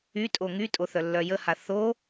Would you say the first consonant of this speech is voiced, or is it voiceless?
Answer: voiceless